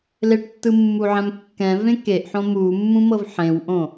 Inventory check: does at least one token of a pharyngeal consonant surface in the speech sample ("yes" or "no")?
yes